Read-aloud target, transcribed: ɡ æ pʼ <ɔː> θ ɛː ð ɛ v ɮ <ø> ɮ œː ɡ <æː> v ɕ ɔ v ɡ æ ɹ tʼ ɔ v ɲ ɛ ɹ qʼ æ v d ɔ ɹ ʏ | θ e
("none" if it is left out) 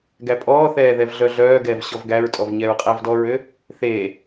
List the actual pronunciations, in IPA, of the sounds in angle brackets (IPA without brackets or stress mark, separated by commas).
ɔː, œ, ɛː